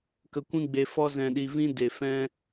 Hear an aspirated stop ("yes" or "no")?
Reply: no